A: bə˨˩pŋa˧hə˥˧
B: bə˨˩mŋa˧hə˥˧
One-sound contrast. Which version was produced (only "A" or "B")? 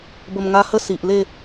B